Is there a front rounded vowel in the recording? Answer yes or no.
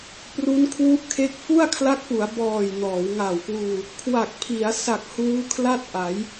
no